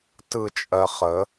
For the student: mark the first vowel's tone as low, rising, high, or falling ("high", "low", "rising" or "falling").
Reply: falling